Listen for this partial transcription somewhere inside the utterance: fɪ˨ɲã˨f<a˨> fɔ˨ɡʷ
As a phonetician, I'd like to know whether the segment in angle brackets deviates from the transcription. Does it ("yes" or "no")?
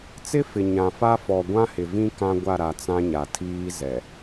yes